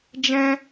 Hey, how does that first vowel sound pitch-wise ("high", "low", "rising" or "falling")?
high